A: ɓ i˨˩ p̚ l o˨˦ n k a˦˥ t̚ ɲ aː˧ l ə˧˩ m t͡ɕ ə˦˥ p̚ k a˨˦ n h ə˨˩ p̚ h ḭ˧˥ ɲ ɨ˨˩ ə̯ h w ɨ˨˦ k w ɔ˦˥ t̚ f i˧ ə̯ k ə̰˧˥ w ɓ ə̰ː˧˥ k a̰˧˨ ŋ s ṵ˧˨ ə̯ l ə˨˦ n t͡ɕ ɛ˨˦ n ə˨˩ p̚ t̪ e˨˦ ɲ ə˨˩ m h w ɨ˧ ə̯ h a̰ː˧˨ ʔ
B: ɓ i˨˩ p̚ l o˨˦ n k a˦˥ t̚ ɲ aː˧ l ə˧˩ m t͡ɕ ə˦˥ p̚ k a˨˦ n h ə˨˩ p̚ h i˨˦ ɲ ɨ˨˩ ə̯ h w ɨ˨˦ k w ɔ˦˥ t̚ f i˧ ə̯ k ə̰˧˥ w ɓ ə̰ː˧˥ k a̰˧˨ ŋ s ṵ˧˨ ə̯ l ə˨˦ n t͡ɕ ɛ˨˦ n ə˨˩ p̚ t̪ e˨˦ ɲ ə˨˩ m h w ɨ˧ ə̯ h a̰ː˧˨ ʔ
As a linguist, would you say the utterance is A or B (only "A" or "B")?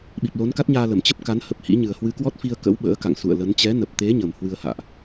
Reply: A